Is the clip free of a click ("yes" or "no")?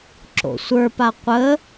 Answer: no